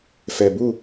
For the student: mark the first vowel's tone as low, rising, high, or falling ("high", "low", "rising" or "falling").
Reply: low